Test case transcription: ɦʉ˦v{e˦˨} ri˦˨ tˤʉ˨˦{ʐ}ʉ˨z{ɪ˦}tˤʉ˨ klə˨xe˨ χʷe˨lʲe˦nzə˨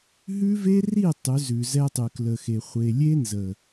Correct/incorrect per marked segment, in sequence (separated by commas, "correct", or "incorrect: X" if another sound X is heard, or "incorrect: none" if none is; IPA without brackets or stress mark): incorrect: e˦, incorrect: z, incorrect: ɛ˦